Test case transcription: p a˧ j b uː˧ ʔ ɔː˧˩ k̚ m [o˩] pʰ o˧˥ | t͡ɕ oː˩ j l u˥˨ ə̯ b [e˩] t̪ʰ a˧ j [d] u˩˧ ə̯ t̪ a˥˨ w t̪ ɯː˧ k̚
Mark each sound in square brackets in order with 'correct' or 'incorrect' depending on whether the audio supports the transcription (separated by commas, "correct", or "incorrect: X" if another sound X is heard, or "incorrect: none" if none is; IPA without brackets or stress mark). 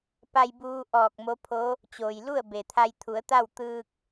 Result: incorrect: o˧˥, correct, incorrect: t̪ʰ